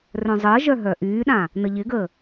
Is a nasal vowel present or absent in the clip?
present